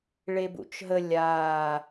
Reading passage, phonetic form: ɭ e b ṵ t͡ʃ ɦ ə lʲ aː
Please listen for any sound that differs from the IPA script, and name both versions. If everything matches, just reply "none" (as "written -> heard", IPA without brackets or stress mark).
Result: none